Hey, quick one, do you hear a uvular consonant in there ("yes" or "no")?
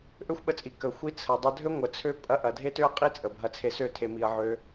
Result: yes